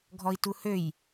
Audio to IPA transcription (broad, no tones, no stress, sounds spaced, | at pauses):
ɡʱ ɔ i̯ t u h ø j